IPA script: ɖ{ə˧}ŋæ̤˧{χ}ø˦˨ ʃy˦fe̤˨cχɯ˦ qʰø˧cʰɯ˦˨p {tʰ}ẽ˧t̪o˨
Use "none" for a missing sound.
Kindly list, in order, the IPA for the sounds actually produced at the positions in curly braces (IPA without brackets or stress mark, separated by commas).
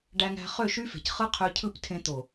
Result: æ˧, χ, tʰ